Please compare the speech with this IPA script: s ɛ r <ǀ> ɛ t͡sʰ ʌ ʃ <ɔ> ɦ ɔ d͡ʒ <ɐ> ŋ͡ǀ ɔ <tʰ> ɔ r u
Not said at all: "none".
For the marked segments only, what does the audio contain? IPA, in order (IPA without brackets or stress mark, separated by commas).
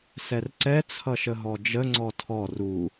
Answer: ǀ, ə, ə, tʰ